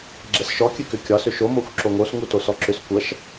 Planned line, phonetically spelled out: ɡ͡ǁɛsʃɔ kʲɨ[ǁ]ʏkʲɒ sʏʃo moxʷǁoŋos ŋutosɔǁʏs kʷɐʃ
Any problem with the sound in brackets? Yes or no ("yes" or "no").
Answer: yes